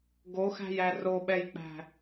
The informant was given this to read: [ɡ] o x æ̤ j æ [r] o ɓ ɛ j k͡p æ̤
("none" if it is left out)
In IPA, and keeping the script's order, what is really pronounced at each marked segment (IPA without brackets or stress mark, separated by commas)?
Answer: ɡ, r